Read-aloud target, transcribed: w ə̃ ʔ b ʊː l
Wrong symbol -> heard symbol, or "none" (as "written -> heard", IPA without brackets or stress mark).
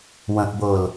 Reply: none